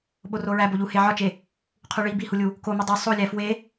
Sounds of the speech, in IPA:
ɓ o r o ɹ æ b o ʎ u h e ʕ ɒ t͡ʃ e | qʰ u ɭ i b i h u lʲ u | k o m e dˤ o sˤ o lʲ æ f w e

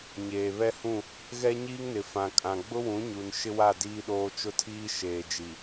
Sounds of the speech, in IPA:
ɲ eː˨ β ɛ˦ h ũ˦˨ | ɣ ɛ˦ ɲ iː˦ ŋ n ɪ˨ f ã˨ kʼ ã˨ ɡ͡b ʊ˦ w ũ˨˦ ɲ u˨ n ʃ ɪ˦ w a˦˨ d iː˦ ɗ oː˦ t͡ʃ ʊ˦ tʰ iː˦ ʃ eː˨ d͡ʒ i˨

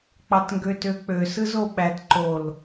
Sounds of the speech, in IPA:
k͡p ɑ t ŋ ɡ ø t ø k͡p ø s ɯ z o ɓ æ t ǃ o l

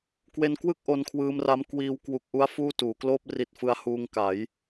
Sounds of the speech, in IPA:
k w e˧ n k w ɯ˥˩ k̚ ʔ o˧ n kʰ w ɯː˧ m r a˦˥ m k w iː˧ w k w u˨˩ k̚ ʔ u˦˥ a̯ f uː˥˩ t uː˩˦ k l oː˥˩ p̚ r i˦˥ t̚ f ɯ˦˥ a̯ h uː˧ ŋ k a˩˦ j

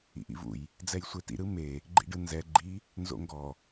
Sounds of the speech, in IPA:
ḭ ʔ ḭ v ṵ j | d͡z ɛ j sʷ e t ḭ ɾ ɯ m e | ɡ͡ǃ ḭ ɖ ɯ n z ɛ ɡ͡ǃ i | n z o̰ ŋ ɡ ɔ

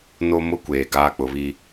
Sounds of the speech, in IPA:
n o˦ m ʊ˦ kʷ eː˨ ɡ aː˦ k͡p ʊ˨˦ β i˦

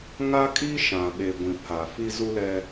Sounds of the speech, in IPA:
ŋ a˦ kʼ i˦ ʃ ã˨ ɓ e˨ ɡʷ ĩ˨ pʰ a˨ f i˦ z u˦ l ɛ˦

